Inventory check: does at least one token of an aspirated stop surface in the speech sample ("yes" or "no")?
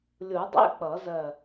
no